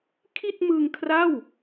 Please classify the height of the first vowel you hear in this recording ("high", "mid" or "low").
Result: high